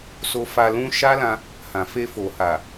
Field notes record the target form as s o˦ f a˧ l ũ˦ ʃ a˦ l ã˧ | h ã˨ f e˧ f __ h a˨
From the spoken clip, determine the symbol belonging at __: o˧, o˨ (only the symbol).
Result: o˨